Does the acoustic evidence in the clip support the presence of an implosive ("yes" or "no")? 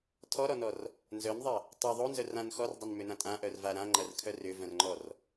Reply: no